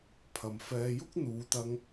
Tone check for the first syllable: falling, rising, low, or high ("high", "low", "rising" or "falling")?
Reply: low